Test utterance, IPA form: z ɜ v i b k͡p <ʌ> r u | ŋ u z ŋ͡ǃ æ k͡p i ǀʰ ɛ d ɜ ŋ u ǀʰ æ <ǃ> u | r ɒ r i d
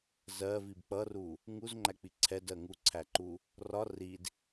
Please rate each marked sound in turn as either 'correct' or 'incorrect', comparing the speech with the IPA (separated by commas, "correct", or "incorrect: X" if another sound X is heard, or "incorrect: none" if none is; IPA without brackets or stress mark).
correct, correct